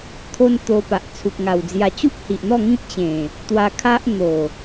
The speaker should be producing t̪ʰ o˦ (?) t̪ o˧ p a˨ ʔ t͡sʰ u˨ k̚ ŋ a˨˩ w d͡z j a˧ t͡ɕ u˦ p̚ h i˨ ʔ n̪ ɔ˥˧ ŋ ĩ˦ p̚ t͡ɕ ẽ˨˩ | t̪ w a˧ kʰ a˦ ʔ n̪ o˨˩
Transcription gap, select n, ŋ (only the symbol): n